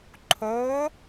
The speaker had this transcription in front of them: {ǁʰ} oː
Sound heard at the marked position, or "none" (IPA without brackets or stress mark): ǃʰ